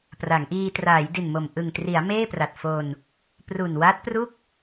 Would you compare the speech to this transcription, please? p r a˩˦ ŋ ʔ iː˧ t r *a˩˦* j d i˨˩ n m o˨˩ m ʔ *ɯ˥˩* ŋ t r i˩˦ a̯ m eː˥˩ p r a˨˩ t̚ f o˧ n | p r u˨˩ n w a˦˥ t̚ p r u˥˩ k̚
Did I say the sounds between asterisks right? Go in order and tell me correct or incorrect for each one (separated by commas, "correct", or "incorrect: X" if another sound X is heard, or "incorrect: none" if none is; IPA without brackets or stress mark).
incorrect: aː˩˦, incorrect: ɯ˨˩